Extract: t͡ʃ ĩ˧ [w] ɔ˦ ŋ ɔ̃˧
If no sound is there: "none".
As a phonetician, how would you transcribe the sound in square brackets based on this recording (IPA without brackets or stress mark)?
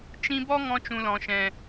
b